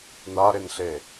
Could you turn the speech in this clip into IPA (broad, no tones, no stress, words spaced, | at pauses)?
naɾenɬe